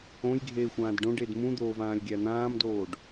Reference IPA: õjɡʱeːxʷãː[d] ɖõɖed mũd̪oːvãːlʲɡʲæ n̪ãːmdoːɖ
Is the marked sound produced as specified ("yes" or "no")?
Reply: yes